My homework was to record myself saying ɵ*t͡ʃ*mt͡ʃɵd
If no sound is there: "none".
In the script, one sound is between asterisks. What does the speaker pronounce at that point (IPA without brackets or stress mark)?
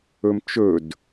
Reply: none